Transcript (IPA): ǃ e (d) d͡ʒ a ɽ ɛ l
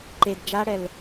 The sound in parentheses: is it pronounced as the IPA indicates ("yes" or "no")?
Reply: yes